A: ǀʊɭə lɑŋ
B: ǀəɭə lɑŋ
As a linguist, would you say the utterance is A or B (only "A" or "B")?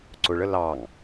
A